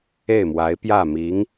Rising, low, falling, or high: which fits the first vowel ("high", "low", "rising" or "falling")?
falling